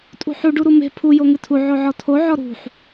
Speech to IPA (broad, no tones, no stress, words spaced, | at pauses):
tʼṳħu ɖuɾume̤ pʰu joŋɨtʰu ʕoʕɔtʰo ʕɔɾṳħ